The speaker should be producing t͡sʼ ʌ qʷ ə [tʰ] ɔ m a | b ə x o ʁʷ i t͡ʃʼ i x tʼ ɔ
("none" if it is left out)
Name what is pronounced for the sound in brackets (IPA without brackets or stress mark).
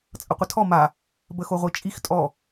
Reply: tʰ